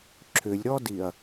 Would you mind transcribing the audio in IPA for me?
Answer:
ǁʰ ʏ lʲ ɾ ɔ d i ɐ̯

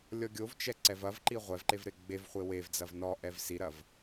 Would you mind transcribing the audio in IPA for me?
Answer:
lʲ ɔ ɡʲ o v t͡ʃ ɛ ǀ ɛ v ɐ v ǃ i ʁʷ ɛ v ǃ e v ɾ e ɡ͡b e v χʷ e w e v d͡z ɐ v n ɔ ʔ ɛ v s i ɾ ɐ v

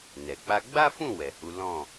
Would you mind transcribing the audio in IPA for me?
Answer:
n ɛ˨ k͡p a˧ ɡ͡b a˦ f ũ˦˨ w ɛ˨ h u˨˦ l ɔ̃˦˨

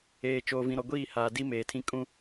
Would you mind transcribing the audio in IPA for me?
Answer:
eː˨ t͡ʃ oː˨ v ĩ˨ ɾ ɔ˨ ɡʷ iː˦˨ h aː˨ d i˦ m eː˨ tʰ ĩ˦ kʼ ũ˦

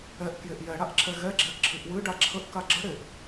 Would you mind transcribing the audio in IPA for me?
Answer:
ɛ ʔ k j e ʔ j ɛ ɽ a ʔ ǁʰ ɛ ɣ ɛ ɡ͡ǁ ɛ ʔ ǁʰ ɨ ʔ w ɨ ɖ a ǁʰ ə ʔ k a ɡ͡ǁ ə ɽ e ʔ

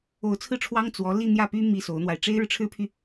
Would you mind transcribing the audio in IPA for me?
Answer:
o˧˥ ʊ̯ t͡sʰ ɹ̩˥˩ ʈ͡ʂʰ w ɑ˥ ŋ t͡s w ɔ˧˥ l i˥˧ n̪ j ä˥˩ p y˥ m i˥ s o˧˥ ʊ̯ n̪ w a˧ ɪ̯ ʈ͡ʂ e˥ ɪ̯ ɻ ɻ̩˨ ʈ͡ʂʰ ɻ̩˥ pʰ y˨

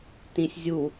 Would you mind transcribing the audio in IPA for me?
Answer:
t ĩ sʲ zʲ u

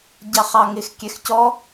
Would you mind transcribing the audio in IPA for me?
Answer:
ɟ ɑ χ ɑ ŋ ɪ x kʲ ɛ x c ɔ

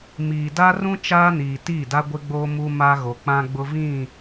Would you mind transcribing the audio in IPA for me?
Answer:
m iː˨ d a˦ r ũ˦ t͡ʃ aː˦ n iː˨ t iː˦˨ d a˦ ɡʷ ɪ˦ ɡ͡b oː˦ m u˦ m a˦ ɣ o˨ k͡p ã˦ ɡ͡b ʊ˦ v ĩ˦˨

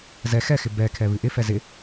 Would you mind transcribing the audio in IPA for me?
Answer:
z ɛ x ɛ x ɪ b ɛ kʰ ɛ β ɨ ʔ ɪ f ɛ z ɪ

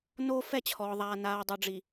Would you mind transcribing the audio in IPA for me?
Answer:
n oː˦ f ɛ˦˨ t͡ɕʰ ɔː˨ ðˤ aː˨ n aː˨ dˤ o˨ ɖ͡ʐ i˨

